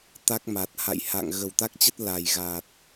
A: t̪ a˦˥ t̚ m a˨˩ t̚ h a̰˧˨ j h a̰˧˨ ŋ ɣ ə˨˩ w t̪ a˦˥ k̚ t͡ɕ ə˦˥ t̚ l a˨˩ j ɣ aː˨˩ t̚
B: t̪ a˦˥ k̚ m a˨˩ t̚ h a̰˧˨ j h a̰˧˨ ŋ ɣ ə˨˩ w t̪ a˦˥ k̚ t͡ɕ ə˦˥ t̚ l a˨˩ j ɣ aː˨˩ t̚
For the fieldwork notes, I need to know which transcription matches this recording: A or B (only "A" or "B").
B